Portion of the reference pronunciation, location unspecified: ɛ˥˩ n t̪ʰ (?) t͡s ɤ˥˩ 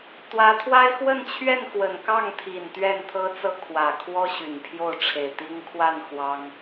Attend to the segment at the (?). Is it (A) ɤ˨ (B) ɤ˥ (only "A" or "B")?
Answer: B